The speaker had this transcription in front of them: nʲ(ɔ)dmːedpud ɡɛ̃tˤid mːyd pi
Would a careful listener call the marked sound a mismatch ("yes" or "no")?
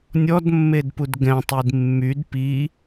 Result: no